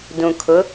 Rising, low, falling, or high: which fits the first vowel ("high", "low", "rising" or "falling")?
low